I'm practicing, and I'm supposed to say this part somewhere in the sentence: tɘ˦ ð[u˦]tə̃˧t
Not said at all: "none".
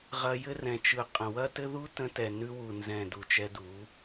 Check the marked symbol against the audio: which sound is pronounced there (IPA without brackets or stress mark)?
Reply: u˦